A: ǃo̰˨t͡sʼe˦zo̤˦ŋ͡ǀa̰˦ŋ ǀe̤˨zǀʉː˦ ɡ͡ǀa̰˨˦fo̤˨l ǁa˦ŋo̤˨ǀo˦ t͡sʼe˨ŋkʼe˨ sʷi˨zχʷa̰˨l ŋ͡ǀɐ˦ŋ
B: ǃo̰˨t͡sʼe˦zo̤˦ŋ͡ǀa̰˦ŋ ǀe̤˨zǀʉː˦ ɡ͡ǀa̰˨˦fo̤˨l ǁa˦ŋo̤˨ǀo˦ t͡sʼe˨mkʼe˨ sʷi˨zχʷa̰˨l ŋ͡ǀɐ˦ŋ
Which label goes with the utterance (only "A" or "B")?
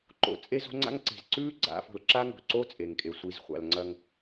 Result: A